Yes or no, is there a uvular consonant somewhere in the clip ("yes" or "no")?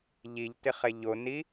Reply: yes